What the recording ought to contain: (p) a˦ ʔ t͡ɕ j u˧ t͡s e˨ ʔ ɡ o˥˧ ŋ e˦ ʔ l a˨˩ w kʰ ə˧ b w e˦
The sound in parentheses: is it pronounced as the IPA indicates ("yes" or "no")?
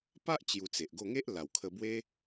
yes